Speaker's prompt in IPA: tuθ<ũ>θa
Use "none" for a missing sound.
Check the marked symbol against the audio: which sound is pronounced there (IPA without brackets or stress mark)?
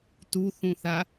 ũ